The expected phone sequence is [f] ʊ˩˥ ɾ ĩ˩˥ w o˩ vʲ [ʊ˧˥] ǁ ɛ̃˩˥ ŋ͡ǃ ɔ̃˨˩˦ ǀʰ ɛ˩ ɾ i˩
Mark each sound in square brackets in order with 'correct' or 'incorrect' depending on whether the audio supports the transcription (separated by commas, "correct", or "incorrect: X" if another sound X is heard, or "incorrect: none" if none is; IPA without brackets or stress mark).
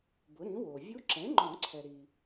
incorrect: b, incorrect: u˧˥